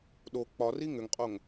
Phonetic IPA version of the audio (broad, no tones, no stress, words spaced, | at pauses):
ɗo k͡pɒri ŋʏŋqʼoŋ